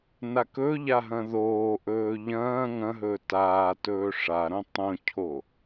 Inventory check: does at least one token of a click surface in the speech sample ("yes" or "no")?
no